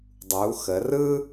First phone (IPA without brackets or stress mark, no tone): dˤ